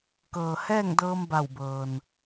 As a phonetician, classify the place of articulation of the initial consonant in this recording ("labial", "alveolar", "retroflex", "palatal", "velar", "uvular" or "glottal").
velar